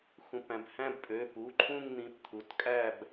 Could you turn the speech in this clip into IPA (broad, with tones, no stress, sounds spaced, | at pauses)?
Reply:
x ũ˩˧˩ p æ̃˩˧˩ b h æ̃˦˨ b pʼ ø˩˧˩ p u˩˧˩ ǃʰ ũ˦˨ ŋ n̪ ĩ˩˧˩ p t̪ʰ u˩˧˩ t kʼ æ˦˨ b